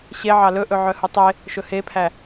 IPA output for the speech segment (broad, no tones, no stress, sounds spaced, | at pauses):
ɕ e ʕ ɑ l ɵ ʔ ɵ ʕ œ h u tˤ e | ʃ ɵ h e pʰ æ